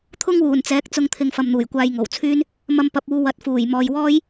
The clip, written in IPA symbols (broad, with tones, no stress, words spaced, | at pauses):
t̪ʰʊ˥ŋwuː˨˩nt͡sɛː˨˥k̚ t͡sʊ˧ŋt̪ʰɪ˨ŋ fɐ˨mn̪uː˨˩j kʷaː˧jŋo˨˩wt͡sʰyː˥n | mɐ˧mpɐ˨p̚uː˨˧ wɐ˨˥t̚fuː˨˩jmɔː˨jwɔː˥j